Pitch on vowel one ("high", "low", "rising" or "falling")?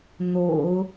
low